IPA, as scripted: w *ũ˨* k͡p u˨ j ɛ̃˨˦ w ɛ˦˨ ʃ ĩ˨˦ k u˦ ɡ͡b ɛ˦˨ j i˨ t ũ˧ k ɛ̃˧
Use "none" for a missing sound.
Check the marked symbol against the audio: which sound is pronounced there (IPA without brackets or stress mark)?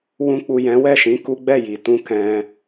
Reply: ũ˨